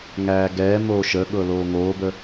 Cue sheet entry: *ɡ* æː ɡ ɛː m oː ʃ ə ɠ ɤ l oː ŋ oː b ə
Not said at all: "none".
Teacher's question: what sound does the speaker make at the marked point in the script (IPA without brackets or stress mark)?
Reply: ŋ